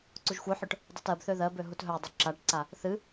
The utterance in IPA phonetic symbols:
ǀuʒxʷœħœʈ | dˤutɜbθø ðɜbø ɦutɦœdˤu ǁaʈǀa | θɨ

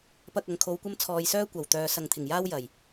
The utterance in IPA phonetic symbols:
pɐ˨k̚ ɐ˨ŋkʰo˨˧w kʷɐ˥mt͡sʰɔː˧j sœː˥kʷɐ˨˩w t̪œː˨˧sɐ˨ŋt̪ʰɪ˨˩ŋjaː˥w jɐ˨˩j

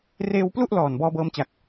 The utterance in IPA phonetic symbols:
reː˧wplu˥˩ʔ lɔː˨˩n bɔː˧bɤː˧mt͡ɕa˨˩k̚

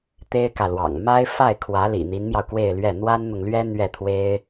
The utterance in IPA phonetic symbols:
t̪e˥ɪ̯kä˨lwɑ̰˨˩ŋ ma˥ɪ̯fa˥˩ɪ̯kʰwä˧˥ lḭ˨˩n̪i˧˥nmjɑ˧ʊ̯ kwe˥˧ɪ̯lɥɛ˥˩ n̪wa˥nn̪ʊ˨ŋlɥɛ˥ n̪ɥɛ˥˩t̪ʰwe˥ɪ̯

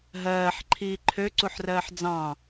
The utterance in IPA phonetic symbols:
ɦɜːħǃʰiː ǃʰøǀuħrɜːħ d͡zɑ̃

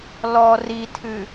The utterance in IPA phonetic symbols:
lɔ ritʰɨ

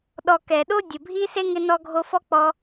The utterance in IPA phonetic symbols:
ɗɔ˨ kɛ˩ɗo˥ dʲʊ˩bʱi˦ se˥ŋɪ˦nɔ˦ɡʱo˦ fɔ˥k͡pɔ˦

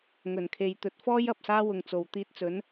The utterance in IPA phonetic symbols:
ŋɵ˨˩nkʰe˨jt̪ɵ˨˥t̚ fɔː˥j ɐ˨p̚saː˥wʊ˨ŋt͡so˨˩w t̪iː˧t̚t͡sɵ˨˥n

